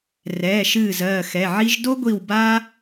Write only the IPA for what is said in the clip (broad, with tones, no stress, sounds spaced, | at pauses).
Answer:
r ɛː˩˧˩ ʃ ɨː˧˩ z ɜː˧˩ x ɛ˩˧˩ ʕ i˦ ʒ d o˦ ɡʷ i˧˩ w b a˦